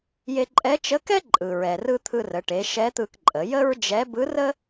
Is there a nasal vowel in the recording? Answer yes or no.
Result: no